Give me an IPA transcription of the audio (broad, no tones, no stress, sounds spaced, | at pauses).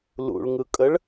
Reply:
l ṵ ɭ ŋ ɯ kʼ ə ɭ